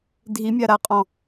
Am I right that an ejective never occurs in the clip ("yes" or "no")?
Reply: no